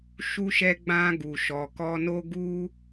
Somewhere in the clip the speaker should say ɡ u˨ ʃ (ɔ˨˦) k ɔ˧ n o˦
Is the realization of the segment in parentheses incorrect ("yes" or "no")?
yes